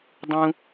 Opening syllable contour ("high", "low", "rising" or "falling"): high